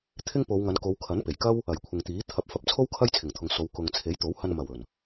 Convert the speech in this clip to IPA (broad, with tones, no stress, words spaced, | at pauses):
t̪ʰɪ˥ŋpo˨˧wŋɐ˨˧n ko˨˧wkʰɐ˨˥npe˨˩jkɐ˥w | ɐ˨˩jkʷʰɪ˨ŋt̪iː˨˥ t̪ʰɐ˨˥p̚fɐ˨˥p̚t͡sʰo˥w kʰɐ˥jt͡sʰɪ˨˩ŋt̪ʰʊ˨˧ŋ so˨˧w kʊ˨ŋ t͡sʰe˨˥jt̪o˨˥whɐ˧n mɐ˨˩wɵ˨˩n